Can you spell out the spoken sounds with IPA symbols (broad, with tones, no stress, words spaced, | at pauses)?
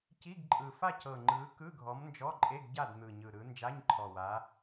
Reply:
ci˧˥˧ɡǃʼɯ˨˩ fa˥˨cɤ˨˩ ŋ͡ǃɯ˨˦ kɯ˧˥˧ɡʱɔ˨˦mnd͡ʒɔ˧˥˧ǃʼe˧˥˧ɡ ɟa˥˨dn̪ɯ˨˩ɲɯ˨˩ ɾɯ˨˦ nd͡ʒa˧˥˧ɲǃʰɔ˨˩wa˨˦